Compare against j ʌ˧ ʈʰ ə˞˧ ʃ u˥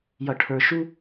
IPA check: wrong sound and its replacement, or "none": none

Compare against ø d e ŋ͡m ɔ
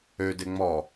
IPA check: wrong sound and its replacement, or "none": none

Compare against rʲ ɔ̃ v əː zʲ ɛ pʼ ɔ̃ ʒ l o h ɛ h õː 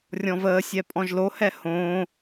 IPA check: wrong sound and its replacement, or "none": zʲ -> sʲ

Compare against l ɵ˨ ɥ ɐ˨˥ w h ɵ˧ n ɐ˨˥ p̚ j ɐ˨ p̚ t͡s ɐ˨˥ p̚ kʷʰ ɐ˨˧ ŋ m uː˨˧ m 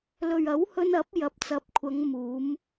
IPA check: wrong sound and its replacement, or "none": none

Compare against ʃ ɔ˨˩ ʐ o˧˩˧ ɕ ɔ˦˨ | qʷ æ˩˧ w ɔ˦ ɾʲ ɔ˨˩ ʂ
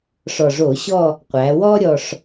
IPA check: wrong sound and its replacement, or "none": ʃ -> ʂ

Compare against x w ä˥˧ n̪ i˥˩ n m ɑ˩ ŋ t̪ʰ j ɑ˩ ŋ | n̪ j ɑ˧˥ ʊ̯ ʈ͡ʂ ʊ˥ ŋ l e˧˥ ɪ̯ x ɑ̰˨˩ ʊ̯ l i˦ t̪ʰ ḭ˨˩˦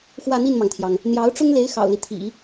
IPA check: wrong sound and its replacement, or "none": none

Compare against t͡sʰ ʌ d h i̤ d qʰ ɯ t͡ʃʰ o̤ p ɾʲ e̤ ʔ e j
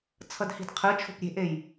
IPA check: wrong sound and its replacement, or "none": none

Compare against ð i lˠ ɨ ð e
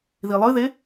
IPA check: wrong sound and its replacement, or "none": none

